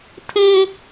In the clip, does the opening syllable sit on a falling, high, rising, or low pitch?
high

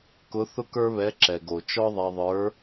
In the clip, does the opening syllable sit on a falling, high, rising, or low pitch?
rising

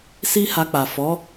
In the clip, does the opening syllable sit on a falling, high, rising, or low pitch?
high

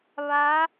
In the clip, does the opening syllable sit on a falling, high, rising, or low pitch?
rising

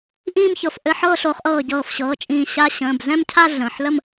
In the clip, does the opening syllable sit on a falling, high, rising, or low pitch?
falling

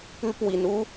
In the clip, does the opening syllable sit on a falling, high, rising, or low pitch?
high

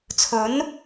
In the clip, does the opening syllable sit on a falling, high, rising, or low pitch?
rising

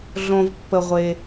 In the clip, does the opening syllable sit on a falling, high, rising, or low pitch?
low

